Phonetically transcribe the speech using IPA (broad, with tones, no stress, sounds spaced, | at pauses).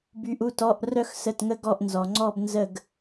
b y˩˧ ʔ u˩˧˩ t ɔ˩˧˩ ʔ r œ˦˨ x s ə˩˧˩ t ŋ ə˦˨ ɡ ɔ˦˨ ʔ n z ɔ˩ ŋ͡ǀ ɔ˦˨ b n z ə˦˨ ɡ